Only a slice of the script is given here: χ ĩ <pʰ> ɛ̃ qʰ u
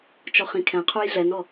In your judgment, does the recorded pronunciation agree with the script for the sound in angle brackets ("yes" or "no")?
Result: no